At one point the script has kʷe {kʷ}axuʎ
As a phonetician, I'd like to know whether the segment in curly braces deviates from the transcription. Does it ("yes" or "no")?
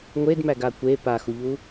yes